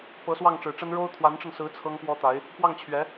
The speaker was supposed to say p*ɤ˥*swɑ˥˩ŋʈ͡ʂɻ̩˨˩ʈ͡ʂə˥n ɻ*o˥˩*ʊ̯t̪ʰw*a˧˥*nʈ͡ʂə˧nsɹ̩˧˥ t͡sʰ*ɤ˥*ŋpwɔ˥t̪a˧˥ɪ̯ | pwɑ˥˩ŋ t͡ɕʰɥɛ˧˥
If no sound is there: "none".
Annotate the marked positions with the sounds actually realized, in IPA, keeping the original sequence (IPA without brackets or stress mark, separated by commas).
ɤ˧˥, o˥, a˧˥, ɤ˥